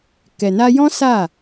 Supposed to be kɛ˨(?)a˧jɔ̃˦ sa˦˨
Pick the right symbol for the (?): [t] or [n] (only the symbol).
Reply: n